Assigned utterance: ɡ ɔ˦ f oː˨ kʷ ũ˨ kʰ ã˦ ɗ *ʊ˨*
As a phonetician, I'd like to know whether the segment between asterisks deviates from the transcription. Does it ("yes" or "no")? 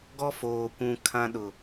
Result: no